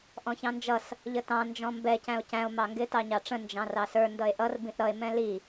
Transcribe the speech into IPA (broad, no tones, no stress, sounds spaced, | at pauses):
ʔ ɔ̃ ç ɑ̃ n d͡ʒ ʌ s | ʎ ə t ɑ̃ n d͡ʒ ɔ̃ m b ɛ c æ̃ o̯ c æ̃ o̯ m ɑ ŋ ɡ ɪ t ɑ ɲ ɑ ʈ͡ʂ ə̃ n d͡ʒ ɑ̃ r ɑ s ə˞ n d ʌ e̯ ʔ ʌ r b ĩ ʔ ɾ ʌ e̯ m ɛ̃ l i